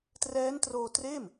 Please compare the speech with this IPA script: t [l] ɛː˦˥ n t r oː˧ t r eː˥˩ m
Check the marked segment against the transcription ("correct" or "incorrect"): incorrect